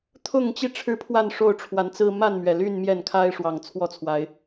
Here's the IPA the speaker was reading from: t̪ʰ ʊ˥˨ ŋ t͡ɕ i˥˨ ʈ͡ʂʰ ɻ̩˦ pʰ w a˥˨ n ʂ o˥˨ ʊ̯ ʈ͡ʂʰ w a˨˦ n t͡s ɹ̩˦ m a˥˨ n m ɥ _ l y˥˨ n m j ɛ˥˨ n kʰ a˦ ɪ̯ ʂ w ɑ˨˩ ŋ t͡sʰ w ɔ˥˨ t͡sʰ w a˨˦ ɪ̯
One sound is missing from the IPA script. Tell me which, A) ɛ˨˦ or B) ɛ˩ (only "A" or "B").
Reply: B